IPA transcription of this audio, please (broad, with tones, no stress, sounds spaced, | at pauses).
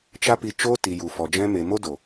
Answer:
t͡ʃ a˦ p i˧ t͡ʃ oː˦ t i˨ j u˨ f ɔ˨ d͡ʒ ɛ̃˦ m e˧ m o˦ d o˨